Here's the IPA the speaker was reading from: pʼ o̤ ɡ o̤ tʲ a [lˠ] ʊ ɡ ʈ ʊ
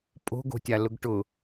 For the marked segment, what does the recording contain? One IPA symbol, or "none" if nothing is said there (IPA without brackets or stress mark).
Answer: l